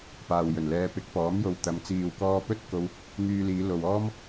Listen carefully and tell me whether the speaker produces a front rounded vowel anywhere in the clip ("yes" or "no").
yes